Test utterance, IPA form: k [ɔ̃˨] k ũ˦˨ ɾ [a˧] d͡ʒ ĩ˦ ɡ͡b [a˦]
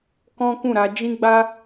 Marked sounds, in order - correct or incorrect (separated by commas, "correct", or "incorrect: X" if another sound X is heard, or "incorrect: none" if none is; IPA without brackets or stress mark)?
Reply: incorrect: ɔ̃˦, correct, correct